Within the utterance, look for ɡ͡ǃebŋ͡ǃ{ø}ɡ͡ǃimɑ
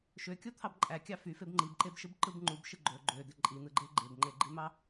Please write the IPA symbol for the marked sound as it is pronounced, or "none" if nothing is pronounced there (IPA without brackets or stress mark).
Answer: e